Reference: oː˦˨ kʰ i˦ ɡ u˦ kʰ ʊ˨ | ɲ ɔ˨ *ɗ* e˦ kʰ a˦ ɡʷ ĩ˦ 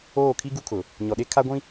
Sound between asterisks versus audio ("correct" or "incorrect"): correct